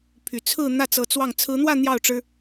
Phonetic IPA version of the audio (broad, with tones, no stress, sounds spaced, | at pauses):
pʰ y˨˩ t͡sʰ ɹ̩˥˧ n̪ ä˥˩ t͡s ɤ˧˥ t͡s w ɑ˥˩ ŋ t͡sʰ ɹ̩˧˥ n̪ w ä˥˧ n̪ j ɑ˥˩ ʊ̯ ʈ͡ʂ ɻ̩˥